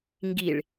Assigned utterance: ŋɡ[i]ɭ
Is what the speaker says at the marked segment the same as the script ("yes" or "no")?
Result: yes